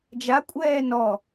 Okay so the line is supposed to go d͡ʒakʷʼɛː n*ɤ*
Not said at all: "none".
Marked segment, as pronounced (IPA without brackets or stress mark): ɔ